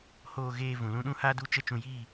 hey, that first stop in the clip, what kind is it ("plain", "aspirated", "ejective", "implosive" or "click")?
implosive